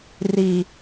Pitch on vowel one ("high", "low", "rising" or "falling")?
low